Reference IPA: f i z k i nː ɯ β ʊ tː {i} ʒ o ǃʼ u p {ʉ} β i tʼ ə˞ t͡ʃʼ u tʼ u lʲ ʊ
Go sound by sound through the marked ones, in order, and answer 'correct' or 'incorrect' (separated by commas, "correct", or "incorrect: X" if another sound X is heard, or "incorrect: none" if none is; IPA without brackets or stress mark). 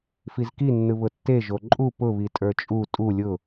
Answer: incorrect: e, incorrect: ʊ